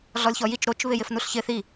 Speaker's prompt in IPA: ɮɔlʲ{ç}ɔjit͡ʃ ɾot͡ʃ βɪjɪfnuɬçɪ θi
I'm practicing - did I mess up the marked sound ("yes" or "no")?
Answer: no